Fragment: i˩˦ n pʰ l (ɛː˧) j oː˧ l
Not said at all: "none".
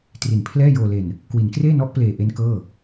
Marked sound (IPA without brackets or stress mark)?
ɛː˥˩